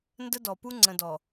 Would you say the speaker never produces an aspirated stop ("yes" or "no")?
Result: yes